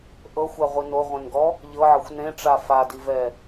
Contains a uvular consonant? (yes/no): yes